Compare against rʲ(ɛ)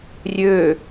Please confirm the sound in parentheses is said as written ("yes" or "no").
no